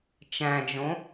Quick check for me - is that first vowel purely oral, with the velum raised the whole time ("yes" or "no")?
no